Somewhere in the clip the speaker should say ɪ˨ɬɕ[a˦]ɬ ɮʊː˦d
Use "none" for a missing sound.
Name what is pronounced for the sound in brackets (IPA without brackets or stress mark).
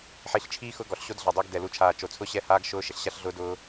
a˦